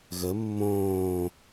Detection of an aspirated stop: absent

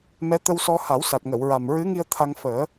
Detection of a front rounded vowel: absent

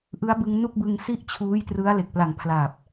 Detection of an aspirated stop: present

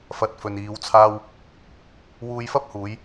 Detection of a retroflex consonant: absent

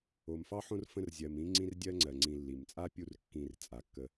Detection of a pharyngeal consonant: present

